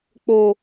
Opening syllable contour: low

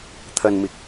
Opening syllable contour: low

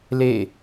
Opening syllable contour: falling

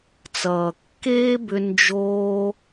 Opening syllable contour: low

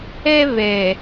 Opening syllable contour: high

